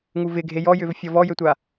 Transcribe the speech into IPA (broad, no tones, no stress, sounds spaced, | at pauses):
ŋ u v ɪ ɡʱ e j ɔ j ʏ v fʲ ɔ v ɔ j ø tʷ a